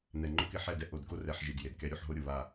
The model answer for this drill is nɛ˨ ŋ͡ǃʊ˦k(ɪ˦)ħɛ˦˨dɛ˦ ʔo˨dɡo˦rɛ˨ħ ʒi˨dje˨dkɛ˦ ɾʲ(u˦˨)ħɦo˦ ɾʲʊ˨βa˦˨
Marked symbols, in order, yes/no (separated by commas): yes, yes